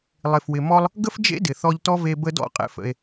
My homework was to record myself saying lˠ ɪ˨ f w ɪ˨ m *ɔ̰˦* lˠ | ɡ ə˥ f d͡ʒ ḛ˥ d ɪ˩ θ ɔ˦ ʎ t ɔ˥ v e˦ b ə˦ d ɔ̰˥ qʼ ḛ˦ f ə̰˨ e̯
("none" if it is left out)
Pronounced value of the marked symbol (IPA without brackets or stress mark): ɔ˦